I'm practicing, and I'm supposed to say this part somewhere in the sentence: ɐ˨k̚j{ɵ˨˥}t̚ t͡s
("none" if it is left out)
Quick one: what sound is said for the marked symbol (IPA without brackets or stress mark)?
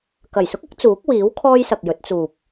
ɵ˨˥